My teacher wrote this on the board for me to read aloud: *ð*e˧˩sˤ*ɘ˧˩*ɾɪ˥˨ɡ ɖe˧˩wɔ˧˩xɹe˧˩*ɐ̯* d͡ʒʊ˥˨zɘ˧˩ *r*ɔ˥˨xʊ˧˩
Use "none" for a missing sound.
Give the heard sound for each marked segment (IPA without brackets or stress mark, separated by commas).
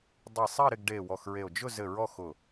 dˤ, ɘ˥˨, o̯, ɹ